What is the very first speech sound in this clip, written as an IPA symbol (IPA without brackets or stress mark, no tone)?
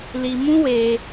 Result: l